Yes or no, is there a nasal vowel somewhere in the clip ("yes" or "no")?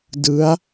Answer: no